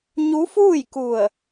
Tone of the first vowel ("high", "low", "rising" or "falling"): rising